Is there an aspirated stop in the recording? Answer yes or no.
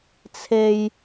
yes